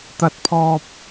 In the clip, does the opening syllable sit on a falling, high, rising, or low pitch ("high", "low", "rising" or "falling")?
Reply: high